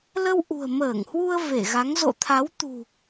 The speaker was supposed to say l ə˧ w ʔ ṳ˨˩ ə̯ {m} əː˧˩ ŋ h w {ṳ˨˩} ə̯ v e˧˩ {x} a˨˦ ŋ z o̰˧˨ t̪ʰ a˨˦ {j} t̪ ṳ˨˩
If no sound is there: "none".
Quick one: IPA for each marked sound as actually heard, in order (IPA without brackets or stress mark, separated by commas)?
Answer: m, u˧, ɣ, w